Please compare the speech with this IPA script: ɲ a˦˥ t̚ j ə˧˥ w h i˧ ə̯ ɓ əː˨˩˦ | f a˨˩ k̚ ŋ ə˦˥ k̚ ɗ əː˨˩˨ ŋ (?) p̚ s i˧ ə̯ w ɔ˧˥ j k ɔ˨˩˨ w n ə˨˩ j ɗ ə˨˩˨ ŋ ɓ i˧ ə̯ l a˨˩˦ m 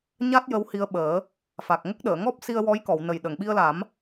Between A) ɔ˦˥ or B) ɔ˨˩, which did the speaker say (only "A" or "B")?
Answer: A